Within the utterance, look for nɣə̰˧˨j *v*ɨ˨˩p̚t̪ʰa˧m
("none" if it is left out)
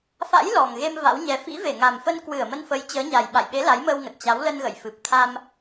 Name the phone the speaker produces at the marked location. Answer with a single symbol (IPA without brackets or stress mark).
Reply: f